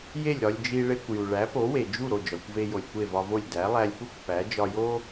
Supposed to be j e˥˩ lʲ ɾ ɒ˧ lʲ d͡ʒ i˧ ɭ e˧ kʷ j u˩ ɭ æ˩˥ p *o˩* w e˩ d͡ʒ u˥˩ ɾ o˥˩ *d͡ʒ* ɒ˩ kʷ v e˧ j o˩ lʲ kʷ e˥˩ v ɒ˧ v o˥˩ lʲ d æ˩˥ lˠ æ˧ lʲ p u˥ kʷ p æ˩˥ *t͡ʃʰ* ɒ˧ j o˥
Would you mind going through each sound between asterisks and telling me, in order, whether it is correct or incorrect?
incorrect: o˩˥, correct, incorrect: d͡ʒ

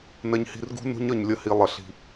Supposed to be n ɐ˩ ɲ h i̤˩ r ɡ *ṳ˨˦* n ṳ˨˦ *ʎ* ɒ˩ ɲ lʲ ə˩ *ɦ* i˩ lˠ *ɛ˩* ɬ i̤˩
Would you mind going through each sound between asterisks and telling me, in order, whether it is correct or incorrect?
correct, incorrect: ɲ, incorrect: h, incorrect: ə˩

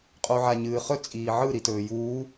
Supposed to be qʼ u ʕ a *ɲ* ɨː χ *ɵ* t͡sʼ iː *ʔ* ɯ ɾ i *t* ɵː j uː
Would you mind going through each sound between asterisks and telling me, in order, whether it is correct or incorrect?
correct, correct, incorrect: ʕ, correct

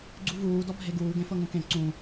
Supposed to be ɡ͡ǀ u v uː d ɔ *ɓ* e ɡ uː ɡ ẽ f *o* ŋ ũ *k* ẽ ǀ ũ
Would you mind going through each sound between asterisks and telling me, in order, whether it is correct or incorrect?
incorrect: bʱ, incorrect: ɤ, correct

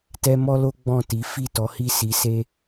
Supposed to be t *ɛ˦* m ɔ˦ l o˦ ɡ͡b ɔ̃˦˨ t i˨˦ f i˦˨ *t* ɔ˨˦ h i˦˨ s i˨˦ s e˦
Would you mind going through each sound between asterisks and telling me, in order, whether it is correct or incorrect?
correct, correct

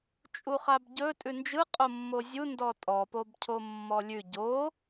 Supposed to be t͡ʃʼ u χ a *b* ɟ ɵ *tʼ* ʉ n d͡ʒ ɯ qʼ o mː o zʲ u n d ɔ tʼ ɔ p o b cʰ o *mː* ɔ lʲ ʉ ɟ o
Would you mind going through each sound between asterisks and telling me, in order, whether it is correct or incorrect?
correct, correct, correct

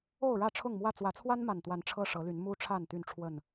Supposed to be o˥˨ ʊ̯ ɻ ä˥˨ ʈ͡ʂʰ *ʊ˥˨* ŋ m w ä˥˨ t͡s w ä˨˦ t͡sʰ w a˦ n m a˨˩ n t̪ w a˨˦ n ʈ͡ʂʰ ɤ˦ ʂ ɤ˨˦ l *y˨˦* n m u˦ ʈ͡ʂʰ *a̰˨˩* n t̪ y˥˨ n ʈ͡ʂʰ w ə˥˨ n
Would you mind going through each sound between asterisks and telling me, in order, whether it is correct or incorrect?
correct, correct, incorrect: a˥˨

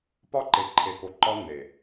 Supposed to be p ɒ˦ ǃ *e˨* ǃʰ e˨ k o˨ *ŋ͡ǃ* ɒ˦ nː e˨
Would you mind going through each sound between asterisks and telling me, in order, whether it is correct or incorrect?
correct, incorrect: ǃ

